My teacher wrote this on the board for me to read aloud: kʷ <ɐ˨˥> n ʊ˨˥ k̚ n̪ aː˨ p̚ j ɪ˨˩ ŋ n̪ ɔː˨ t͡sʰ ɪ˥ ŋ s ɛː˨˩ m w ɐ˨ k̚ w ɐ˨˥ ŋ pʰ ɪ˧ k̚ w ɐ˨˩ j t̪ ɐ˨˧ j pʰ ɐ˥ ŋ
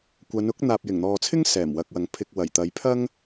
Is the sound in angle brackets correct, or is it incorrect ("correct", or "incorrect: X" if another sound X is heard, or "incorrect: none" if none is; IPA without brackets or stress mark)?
incorrect: ɐ˨˧